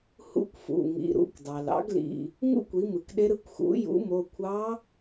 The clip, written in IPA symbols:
h ṵ˧˥ kʷ f ṵ˩˧˩ ŋ ḭ˩˧˩ ɾ ṵ˩˧˩ kʷ dˤ ɑ˩ l ɑ̰˧˥ ɡ l ḭ˩˧˩ | ŋ ṵ˥ kʷ i˩˥ m ɯ˩ k ɗ e˧˥ ɾ ɯ˩˥ kʷ x ṵ˩˥ j ṵ˩˥ m o˩˧˩ kʷʰ ɑ˧˥

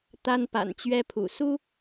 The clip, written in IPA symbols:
t̪ a˥ n p a̰˨˩ n t͡ɕ ɥ ɛ˥ pʰ ṵ˨˩ s u˥

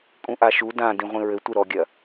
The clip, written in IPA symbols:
kʼ ũ ʔ a ʃ u d ã d ĩ ʁʷ ĩ ɹ ɘ tʷ ɨ ɾ ɔ ɡʲ ɐ

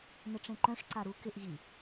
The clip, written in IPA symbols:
n ɪ ʈ͡ʂ ẽ ǃ œ̃ ʂ ǀ a ɾ u k ɪ ʔ ʑ i

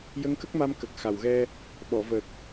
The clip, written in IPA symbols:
j ə˧˥ ŋ k ə˦˥ k̚ m a˧ m k ə˨˩ k̚ x a˨˩ w ɣ ɛ˧ | ɓ ɔ˨˩˨ v ə˨˩ k̚

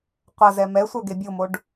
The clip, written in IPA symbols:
qʷ ɐ z ɛ m ɛ sʷ œ ɡ e bʲ o m o ɖ

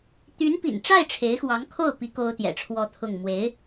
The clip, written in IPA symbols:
t̪ y˧˥ n p ḭ˨˩ n ʈ͡ʂ a˥˩ ɪ̯ ʈ͡ʂʰ e˧˥ ɪ̯ x w ɑ˧˥ ŋ kʰ o˥˩ ʊ̯ p i˧˥ k o˥ ʊ̯ t̪ j ɛ̰˨˩ ʈ͡ʂʰ w ɔ˥˧ t̪ʰ ʊ˥˩ ŋ m w e˧˥ ɪ̯

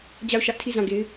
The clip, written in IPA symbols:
d͡ʑ a˦˨ ʊ̯ ʃ ä˦ ʔ tʰ i˦˨ z ã˦˨ ɡ e˦ ɪ̯

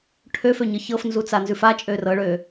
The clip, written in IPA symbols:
ʈʰ ø f ø ɲ ɤ ç ɤ f n z u t͡s a n z ʉ f a t͡ʃʼ ø r ɤ ɭ ø

